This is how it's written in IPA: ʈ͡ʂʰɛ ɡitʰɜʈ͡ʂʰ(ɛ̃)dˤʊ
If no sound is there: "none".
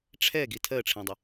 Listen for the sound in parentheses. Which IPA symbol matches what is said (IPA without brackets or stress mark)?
ɛ̃